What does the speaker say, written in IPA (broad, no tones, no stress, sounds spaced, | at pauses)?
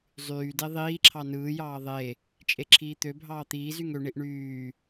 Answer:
zˤ yː d e ðˤ iː ǁʰ ɑ n ɯː j ɑː ðˤ e | t͡ʃʼ e ǁʰ iː t̪ ø bʱ ɑː t̪ iː z y ŋ ø ɳ i ʔ ɳ yː